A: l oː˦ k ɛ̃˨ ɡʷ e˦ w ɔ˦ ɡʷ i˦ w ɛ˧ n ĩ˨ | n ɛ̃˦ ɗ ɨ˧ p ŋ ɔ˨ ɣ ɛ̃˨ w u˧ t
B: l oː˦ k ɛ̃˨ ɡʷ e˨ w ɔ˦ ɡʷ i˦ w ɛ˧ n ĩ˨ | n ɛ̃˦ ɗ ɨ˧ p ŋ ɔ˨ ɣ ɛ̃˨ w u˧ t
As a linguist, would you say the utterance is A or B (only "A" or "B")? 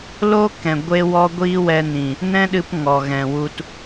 A